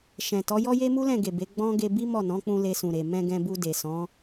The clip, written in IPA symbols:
ʃɛ̃˨tɔ˨˦jɔ˦ je˦mu˦lɛ̃˦˨ɡe˨ be˨˦ ɡ͡bɔ̃˦ ɡe˧bi˦ mɔ˦˨nɔ̃˨˦k͡pũ˧ le˧sũ˨ɾe˨ mɛ̃˧ɡɛ̃˧bu˧ de˨sɔ̃˨˦

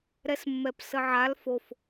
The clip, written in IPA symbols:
ɾɛsmːɛpsəʕal fof

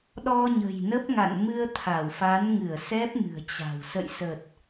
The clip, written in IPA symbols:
ɗɔ˧ɲə̤˨˩jnə˦˥p̚ ŋa̰˧˨nmɨ˧ə̯t̪ʰa˧˩wfa˨˦n ŋɨ˧˩ə̯ sɛ˦˥p̚mɨ̤˨˩ə̯t͡ɕa̤˨˩w sə̰˧˨jsə˨˩t̚

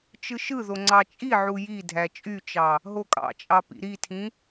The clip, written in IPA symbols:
t͡ʃɯʃɯðo ŋ͡ǀɑt͡ʃʼiʕu jidʱæ t͡ʃʼyt͡ʃɑ | ɦokʼɑ̰t͡ʃʼɑ pḭɾitʰĩ

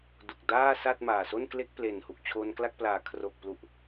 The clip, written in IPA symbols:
du˨˩k̚daː˥˩sa˥˩t̚ maː˨˩ so˥˩nkle˥˩k̚ple˨˩n hu˨˩k̚t͡ɕʰo˧nkla˥˩k̚plaː˨˩ kʰro˨˩k̚plu˨˩ʔ

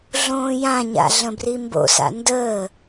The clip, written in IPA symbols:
ɮõːjãɲa̰ ɮə̃brimbo̰sa̰ ndəː

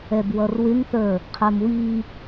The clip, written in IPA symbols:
ɛbwʌrwɪŋθə˞ | qʰə˞mwi

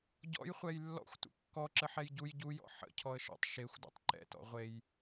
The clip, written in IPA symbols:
ɟɔ̰jχʷɛj lːɔ̰xʷtʷə̰ kːɔǁə ħɛjɟuj ɟujɔ̰ ħə̰ cʰɔə̯ʃɔ̰tˤ ʃexʷdṵtˤ ǃɛ̰tɔ̰ ʁʷej

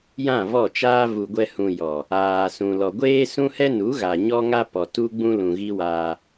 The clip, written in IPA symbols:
jã˦˨vɔ˦˨t͡ʃaː˦ vu˨ɡʷɛ˧ hũ˧ jɔ˨ | aː˨sũ˨ lɔ˨ɡʷeː˦sũ˦hɛ˦ nu˨˦ɣa˨ ɲɔ˦ŋa˦pɔ˨tu˦ ɡ͡bũ˦lũ˨ɣi˦waː˧

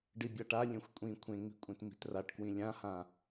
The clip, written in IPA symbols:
ɖibʲaʈa lʲẽxʷkʷʼĩ kʷʰẽŋ͡mi̤kʷʼẽt mi̤traʈkwĩ lʲãhã

